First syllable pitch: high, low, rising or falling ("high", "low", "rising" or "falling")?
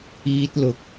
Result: high